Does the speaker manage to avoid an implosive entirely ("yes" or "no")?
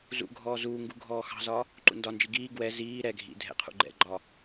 yes